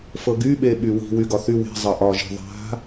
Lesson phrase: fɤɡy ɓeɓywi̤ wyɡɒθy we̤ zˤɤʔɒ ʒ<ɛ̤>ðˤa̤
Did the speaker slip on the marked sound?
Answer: yes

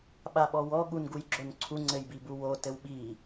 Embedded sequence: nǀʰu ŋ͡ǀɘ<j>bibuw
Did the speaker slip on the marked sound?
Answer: no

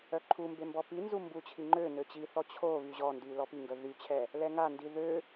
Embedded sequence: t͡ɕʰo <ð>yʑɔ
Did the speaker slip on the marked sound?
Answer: yes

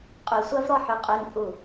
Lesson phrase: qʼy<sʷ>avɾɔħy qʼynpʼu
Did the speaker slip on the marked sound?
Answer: no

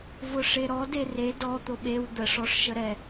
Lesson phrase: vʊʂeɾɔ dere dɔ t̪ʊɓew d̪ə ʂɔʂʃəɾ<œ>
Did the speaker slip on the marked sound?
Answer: yes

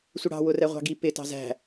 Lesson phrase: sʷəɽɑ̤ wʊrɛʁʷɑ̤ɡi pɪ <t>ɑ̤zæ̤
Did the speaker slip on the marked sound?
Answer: no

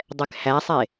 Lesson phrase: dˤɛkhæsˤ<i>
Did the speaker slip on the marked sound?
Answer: yes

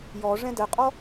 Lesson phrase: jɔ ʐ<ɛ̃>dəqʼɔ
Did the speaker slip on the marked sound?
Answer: no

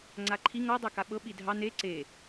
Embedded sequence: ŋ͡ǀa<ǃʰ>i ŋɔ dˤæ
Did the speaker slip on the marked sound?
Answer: no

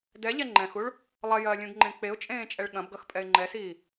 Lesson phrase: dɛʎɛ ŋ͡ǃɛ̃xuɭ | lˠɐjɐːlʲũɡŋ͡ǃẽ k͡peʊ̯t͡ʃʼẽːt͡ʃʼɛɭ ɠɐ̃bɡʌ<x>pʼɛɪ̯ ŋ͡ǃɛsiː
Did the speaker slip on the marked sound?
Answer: no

